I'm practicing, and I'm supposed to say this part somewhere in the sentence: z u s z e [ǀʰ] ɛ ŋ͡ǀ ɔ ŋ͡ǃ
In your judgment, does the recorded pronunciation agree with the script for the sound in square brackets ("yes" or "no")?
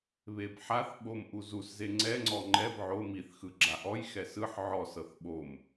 no